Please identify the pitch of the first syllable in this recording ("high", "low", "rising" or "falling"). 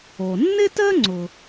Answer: low